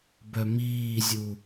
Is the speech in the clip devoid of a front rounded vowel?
no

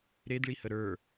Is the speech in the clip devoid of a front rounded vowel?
yes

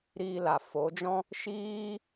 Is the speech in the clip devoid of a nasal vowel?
no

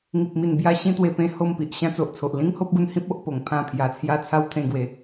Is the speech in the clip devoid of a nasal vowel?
no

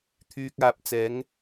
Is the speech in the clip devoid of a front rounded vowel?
no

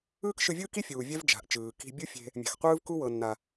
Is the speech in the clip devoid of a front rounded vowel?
yes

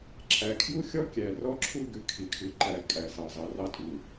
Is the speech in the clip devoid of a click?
no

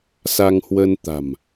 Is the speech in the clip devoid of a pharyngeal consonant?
yes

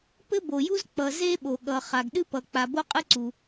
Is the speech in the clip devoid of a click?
no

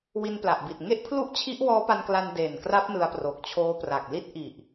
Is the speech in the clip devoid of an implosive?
yes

